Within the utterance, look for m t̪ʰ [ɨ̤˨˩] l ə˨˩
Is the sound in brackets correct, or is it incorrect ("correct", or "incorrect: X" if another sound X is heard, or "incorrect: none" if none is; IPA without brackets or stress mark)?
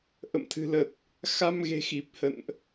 correct